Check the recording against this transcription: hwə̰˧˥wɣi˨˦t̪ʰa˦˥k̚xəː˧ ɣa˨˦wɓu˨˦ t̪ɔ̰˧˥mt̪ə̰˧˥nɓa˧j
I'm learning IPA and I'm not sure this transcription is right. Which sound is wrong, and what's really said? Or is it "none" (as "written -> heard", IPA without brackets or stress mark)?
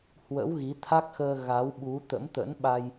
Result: ɔ̰˧˥ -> ə̰˧˥